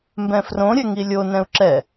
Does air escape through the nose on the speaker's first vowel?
yes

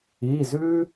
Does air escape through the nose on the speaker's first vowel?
no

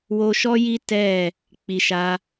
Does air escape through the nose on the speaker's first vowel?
no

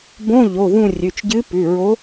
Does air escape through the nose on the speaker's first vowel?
yes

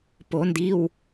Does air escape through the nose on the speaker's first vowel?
no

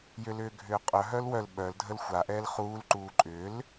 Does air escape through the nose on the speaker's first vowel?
no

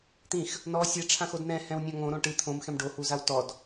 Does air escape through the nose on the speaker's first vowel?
yes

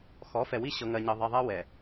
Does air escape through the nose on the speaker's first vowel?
no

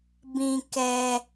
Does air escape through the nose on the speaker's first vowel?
yes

